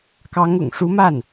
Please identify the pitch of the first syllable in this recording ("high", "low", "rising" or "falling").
rising